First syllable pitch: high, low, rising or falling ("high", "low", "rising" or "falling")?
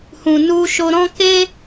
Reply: low